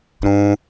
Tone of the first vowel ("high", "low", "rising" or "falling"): high